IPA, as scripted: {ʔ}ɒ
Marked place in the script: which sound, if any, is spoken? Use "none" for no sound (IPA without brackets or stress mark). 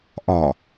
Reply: ʔ